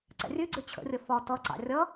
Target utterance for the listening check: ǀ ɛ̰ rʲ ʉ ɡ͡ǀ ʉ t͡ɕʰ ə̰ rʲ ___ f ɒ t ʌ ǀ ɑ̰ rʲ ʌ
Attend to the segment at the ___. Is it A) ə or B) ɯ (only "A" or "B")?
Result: A